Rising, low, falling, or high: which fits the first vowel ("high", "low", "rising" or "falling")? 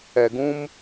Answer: low